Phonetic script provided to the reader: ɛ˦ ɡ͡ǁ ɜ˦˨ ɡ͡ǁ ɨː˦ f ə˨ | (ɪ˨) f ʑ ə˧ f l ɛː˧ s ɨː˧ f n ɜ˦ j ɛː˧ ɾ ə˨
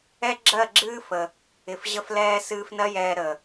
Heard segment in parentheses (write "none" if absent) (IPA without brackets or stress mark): ɪ˨